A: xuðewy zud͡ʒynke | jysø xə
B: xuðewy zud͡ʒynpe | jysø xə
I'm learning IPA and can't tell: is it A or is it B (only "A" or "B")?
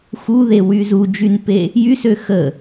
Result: B